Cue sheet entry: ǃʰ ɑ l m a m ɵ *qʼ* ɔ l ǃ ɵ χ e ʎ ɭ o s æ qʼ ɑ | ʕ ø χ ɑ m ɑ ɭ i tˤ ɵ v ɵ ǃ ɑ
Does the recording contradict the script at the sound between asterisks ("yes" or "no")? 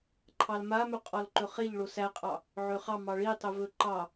no